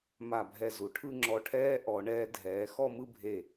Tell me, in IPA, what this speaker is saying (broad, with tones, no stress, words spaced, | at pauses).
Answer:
ma˧˩bʱɛ˧˩ zu˩˧ʈʰɯ˥˧ ŋ͡ǁɔ˧ʈʰɛː˥ ʔɔ˩˧ɳɛː˧ dʱɛː˩˧ xɔ˥˧mɯ˥˧bʱe˧˩